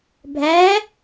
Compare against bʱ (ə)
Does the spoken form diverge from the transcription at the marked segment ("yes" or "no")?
yes